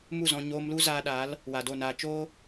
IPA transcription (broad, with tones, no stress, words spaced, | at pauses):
mu˦˨zɔ̃˧ ɲoː˧mlu˦ zaː˧ɗaː˨˦l | wa˨do˦˨naː˧ t͡ʃoː˦